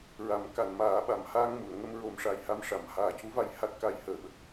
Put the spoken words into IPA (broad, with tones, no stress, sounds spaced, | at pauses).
ɹ a˨˩˦ m k a˨˩˨ n m aː˨˩˦ ɓ a˨˩˨ m h aː˧ ŋ m u˨˩˨ ə̯ ŋ ə˧ m ɹ o˨˩˦ m ʂ a˨˩ j h a˧ m ʂ a˨˩˨ m h aː˨˩ c u˧˥ v a˧ j h a˦˥ t̚ k a˧ j h əː˨˩˨ ɓ ə˨˩ k̚